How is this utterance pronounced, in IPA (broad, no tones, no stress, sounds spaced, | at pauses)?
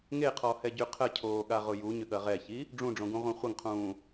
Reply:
ŋ e qʰ ɔ h ɛ ɟ y qʰ ə cʰ oː ɠ a ʁ ʊ j u ɲ ʏ ɠ ɐ ʁ ɛ ç i | ɖ͡ʐ ũ ɖ͡ʐ õ ɡ ũ ʁʷ ã χʷ ɐ ŋ qʰ ũː